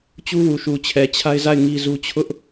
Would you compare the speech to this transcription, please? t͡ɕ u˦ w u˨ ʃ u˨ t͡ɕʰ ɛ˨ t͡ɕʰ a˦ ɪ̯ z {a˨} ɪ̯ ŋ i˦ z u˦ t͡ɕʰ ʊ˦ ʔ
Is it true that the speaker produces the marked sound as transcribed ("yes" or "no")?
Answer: no